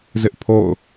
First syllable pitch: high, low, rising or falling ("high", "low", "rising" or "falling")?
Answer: high